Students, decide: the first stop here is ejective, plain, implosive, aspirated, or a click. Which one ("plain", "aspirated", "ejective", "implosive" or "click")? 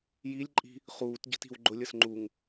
click